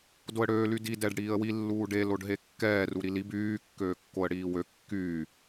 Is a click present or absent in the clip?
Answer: absent